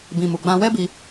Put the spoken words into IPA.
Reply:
b ĩ˨ m u˨ ɡ͡b ã˧ w ɛ˦ b i˧

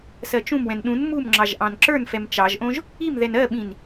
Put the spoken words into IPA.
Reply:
s ɜ t͡ʃ ũ m w ɛ̃ n ɗ ũ n m u m ŋ͡ǁ ɑ ʒ ʔ ɑ̃ n ǁ ə˞ n f ɛ m t͡ʃ ɑ ʒ ʔ õ ʒ | i m ð ɛ n ɜ ɓ ĩ n

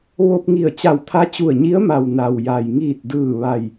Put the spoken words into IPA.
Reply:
ʋ o˧ p̚ ŋ i˧˩ ə̯ t͡ɕ a˧˩ w t̪ʰ a˧˥ t͡ɕ u˧˩ ə̯ ɲ i˧˥ ə̯ m a˩ w n a˩ w j a˩ j ŋ iː˧˩ t̚ d ɯː˧˩ ʋ a˧˩ j

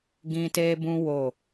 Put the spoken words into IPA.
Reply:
ɡ ĩ˧ t e˦ b ũ˦ w o˦˨

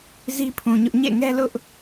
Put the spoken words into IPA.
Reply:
z i˦ pʰ ũ˨ ɲ ʊ˦ ʔ ɲ ḛ˦˨ ŋ ɛ˦ l ʊ˦ ʔ

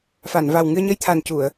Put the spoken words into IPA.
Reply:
f a˨˩˨ n v a˨˩ w ŋ ɨ˧ ə̯ ɲ ə˧ j t̪ʰ a˨˩ n c u˨˩˨ ə̯

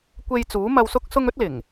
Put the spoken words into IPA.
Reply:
kʷ e˧ j t͡s uː˨˥ m ɐ˧ w s ʊ˥ k̚ s ʊ˥ ŋ ɵ˥ t̚ l ɪ˨˩ ŋ

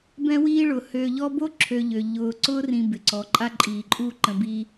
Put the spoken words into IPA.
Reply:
b ɛ̃˦ w iː˦ ɭ ʊ˩ h øː˨ ʎ ɔ˦ b o˥ ǁʰ ø˨ ʎ ø˩ ʎ ʊː˨ ǀ ʊː˥ r ĩ˨ b ɪ˩ ǀ ɔ˩ ǃʼ a˦ ǃʼ iː˩ ǃʼ u˦ ǃ ə̃˨ b i˦

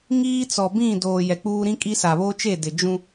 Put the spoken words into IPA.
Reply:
ŋ iː˦ t͡s ɔ˨ b ĩ˦˨ d oː˨ j ɛ˨ k͡p uː˦ ɾ ĩ˦ kʼ i˦ s a˨ β oː˦ t͡ʃ e˦˨ d ɪ˨ d͡ʒ ũ˦

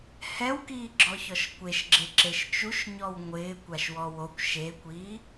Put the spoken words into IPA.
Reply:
h ɛ w k iː ɡ͡ǁ ɔ ç ɔ ʃ kʷ e ʃ ɡ͡ǁ e ǁ e ʃ t͡ʃ u ʃ ɲ ɔ w ŋʷ ɪː kʷ a ʃ w ɔ w o kʷ ʃ e kʷ iː

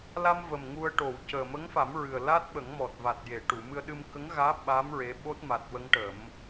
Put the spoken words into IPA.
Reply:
l a˧ m v ə˨˩ m ŋ u˧ ə̯ ʈ o˨˩˨ w c əː˨˩ m ə˧˥ ŋ f a˨˩˦ m ɹ ɨ˨˩ ə̯ l a˦˥ t̚ ɓ ə˨˩˦ ŋ m ɔ˨˩ t̚ v a˨˩ t̚ j e˨˩˨ ʈ u˨˩˨ m ɨ˧ ə̯ ɗ ɨ˧ m k ə˧˥ ŋ ɣ aː˧˥ ɓ a˧˥ m ɹ e˧˥ ɓ o˦˥ t̚ m a˨˩ t̚ w ə˧˥ ŋ ʈ ə˨˩˦ m

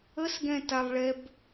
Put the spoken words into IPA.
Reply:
ə s ɡ ɛ̃ t a lˠ ɭ ɛ b

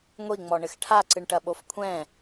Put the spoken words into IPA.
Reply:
ŋʷ i ŋ͡m ɔ ɳ ɘ x ʈʰ a ǀ ɨ ɳ ʈ ɐ ɓ o f kʷʰ ɛ̃

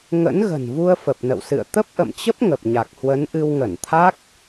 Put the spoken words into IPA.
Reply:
ŋ ə̰˧˥ n ɣ ə̤˨˩ n v u˧ ə̯ f ə˨˩ p̚ n ə̰˧˨ w s ɨ̰˧˨ ə̯ t̪ ə˦˥ p̚ ʔ ə̰˧˨ m t͡ɕ ə˦˥ p̚ ŋ ə˨˩ p̚ ɲ a˨˩ k̚ h w ə˨˦ n ʔ ɨ˧ w ŋ ə˧˩ n t̪ʰ a˦˥ k̚

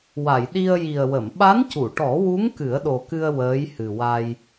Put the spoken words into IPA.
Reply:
w a˨˩˨ j ɗ i˧ ə̯ j i˨˩ ə̯ w ə˨˩˨ m ɓ a˧˥ n c u˨˩˨ ʈ ɔ˨˩˦ w u˧˥ ŋ k ɨ˨˩˦ ə̯ ɗ o˨˩ k ɨ˧ ə̯ w əː˧˥ j h ɨ˨˩ w a˧ j

